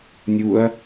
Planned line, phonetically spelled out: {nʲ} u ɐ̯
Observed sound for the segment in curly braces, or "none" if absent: nʲ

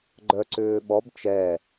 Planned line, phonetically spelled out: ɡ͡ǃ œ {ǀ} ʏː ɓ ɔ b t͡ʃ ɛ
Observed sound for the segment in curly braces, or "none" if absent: ǀ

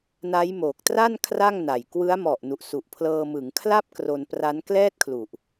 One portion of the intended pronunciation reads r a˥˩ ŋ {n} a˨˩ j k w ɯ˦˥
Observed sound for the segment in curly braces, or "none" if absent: n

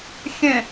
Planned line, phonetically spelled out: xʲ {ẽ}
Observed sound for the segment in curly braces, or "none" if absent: ẽ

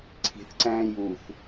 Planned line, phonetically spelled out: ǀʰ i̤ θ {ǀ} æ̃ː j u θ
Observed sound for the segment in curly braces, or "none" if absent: ǀ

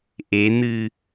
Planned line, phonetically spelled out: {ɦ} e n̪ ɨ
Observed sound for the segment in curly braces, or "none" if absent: ʔ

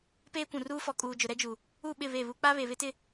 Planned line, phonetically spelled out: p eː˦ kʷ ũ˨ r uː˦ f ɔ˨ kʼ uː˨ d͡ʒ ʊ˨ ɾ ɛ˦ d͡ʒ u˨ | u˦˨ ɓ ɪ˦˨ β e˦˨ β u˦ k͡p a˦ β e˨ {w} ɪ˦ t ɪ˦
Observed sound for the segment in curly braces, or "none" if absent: β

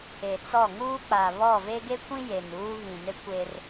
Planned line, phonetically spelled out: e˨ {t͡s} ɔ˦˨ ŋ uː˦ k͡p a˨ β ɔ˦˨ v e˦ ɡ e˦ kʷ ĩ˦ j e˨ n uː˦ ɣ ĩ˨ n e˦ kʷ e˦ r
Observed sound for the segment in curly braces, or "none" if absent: t͡s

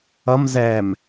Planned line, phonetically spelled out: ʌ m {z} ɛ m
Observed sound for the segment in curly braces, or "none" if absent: z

